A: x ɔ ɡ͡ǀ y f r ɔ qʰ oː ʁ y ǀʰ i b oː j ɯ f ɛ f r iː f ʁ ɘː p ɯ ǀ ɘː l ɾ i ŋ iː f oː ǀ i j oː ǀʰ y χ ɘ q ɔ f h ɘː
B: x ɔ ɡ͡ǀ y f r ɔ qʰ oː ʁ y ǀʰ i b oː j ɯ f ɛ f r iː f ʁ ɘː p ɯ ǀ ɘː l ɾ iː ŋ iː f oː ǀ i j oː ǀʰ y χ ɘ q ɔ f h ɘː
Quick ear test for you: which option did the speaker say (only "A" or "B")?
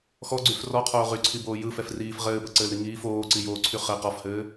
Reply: A